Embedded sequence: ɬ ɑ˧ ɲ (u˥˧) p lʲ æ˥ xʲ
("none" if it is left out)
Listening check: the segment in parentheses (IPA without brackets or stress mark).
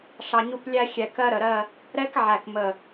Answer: u˥˧